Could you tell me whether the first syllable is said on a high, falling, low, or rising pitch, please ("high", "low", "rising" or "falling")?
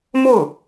falling